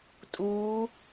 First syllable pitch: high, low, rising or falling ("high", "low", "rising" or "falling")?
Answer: rising